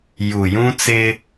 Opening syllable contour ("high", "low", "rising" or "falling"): low